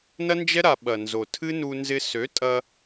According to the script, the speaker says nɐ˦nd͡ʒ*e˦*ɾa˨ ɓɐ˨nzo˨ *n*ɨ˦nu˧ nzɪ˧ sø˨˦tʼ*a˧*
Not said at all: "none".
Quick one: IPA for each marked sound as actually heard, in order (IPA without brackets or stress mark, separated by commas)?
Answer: ɛ˦, tʰ, ɐ˧